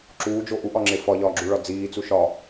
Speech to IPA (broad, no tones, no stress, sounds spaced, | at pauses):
ǁ uː d͡ʒ o ʔ u ʔ ɒ ŋ͡ǁ e f ɒ ʎ ɒː ɡ͡ǁ u ɭ ɒ d͡z iː t͡s u ʃ ɒ